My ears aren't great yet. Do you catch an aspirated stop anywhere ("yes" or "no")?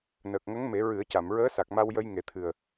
yes